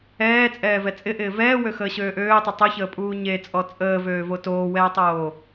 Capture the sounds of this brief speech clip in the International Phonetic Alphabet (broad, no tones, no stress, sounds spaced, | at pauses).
ɛː t͡sʼ ɛː v ɛ t͡sʼ ɪ ʔ ɪː v ɛː w ø x əː ɕ øː ʔ øː tˤ ɪ tˤ o ç əː pʼ uː ɲ e t͡sʼ ɔ t͡sʼ əː v øː v o t oː w ɛː tˤ oː